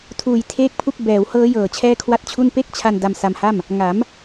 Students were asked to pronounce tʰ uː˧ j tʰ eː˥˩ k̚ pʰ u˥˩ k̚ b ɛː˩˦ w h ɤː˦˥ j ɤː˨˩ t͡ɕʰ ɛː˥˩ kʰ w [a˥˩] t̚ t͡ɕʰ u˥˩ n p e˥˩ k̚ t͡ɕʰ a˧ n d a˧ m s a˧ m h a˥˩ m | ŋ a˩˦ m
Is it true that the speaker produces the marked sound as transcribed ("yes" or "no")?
yes